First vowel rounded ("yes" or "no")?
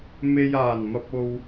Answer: no